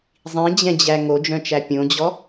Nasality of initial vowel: nasal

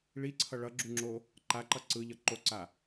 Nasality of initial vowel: oral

